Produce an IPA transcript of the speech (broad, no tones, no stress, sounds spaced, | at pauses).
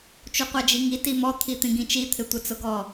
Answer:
t͡ʃ u qʷ a d͡ʒ i ŋ i t i m ɔ t̪ʰ i t̪ ĩ ɡ ĩ t͡ʃ i t̪ʰ ɪ tʷ ɪ t͡s ʊ ɡ ɔ